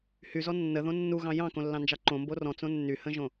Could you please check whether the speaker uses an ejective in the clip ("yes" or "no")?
no